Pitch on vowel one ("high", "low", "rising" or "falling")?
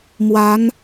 rising